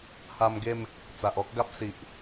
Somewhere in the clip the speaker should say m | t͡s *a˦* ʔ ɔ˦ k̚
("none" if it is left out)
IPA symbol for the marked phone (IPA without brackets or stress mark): a˨